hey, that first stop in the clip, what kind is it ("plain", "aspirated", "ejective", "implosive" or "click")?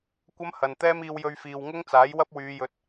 plain